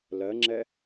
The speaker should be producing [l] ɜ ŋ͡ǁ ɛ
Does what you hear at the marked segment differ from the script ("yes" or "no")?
no